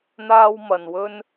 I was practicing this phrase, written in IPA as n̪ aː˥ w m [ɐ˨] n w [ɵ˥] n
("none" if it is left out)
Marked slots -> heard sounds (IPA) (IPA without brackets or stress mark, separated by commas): ɐ˨, ɵ˥